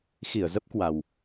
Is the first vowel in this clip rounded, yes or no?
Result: no